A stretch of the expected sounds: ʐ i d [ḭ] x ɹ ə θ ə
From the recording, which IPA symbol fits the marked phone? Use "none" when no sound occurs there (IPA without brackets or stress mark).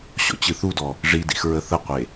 ḭ